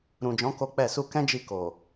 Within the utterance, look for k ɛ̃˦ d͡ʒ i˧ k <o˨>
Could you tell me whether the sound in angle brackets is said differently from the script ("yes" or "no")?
no